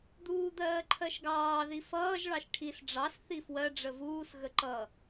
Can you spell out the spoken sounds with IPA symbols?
d̪uːd̪ɜːǃʰɜʃɡɑː ðifʌːʒ ɭɑʃʈʰis ɖ͡ʐɑs θifwɜ ɖ͡ʐəvuːs ɣəǃʌ

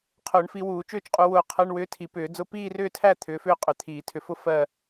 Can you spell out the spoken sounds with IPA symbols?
qʰʊː˨˩˦ɳfi˨˦wuː˨˩˦ t͡ʃʏː˥˧t͡ʃqʼu˨˦wʊː˧˩ qʰɜ˧˥˧ɳwʏː˧˥˧tʰi˨˩˦ pʏː˨˩˦ d͡zʊ˧˥˧ piː˥˧rʏː˥˧tʰæ˥˧ t̪ʰʏː˨˦fʏː˥˧ qʼʏ˨˩˦t̪ʰiː˨˩˦tʰʏ˨˦fʊ˥˧ fɜ˥˧

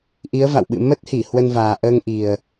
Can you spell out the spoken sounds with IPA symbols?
ʔi˨˦ə̯va̰˧˨wɓɨ̰˧˨ mə˦˥t̚hi˧˩ hwə˧nvaː˨˩ ʔəː˧ŋʔi˨˩ə̯

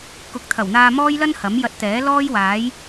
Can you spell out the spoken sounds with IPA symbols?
kʊ˨˥k̚ t̪ʰɐ˨˩wn̪aː˧mɔː˥jlɐ˥n hɐ˨˥mjɐ˧t̚t̪ɛː˨˥ lɔː˥jwaː˨˥j

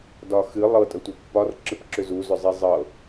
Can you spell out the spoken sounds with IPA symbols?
dɒxɨ lˠɤ tʼətʷɤpːɒrǁɨp ǁʏzuzʏzˤi zˤɤ

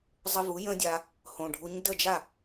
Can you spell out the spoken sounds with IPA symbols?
zˤə˧vu˩˥ jə̃˥dʲa˧ | hõ˩ɖʱu˩˥ɲ də˥˩d͡ʒa˥˩

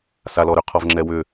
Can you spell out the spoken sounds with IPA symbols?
salɔɾʏ qʰɔvŋ͡ǁɛwʏ

